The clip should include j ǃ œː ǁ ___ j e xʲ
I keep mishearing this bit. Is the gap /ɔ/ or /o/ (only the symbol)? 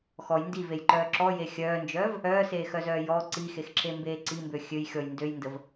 ɔ